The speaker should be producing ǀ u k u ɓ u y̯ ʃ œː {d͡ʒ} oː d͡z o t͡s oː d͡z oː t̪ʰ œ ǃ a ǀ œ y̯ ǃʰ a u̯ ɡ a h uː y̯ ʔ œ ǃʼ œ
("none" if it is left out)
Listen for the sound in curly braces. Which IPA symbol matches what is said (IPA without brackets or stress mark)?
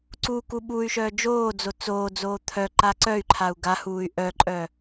d͡ʒ